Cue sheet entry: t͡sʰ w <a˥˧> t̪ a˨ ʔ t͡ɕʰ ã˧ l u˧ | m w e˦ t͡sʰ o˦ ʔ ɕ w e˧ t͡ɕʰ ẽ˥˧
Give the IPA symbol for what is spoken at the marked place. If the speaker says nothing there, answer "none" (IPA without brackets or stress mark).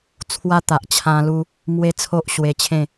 a˦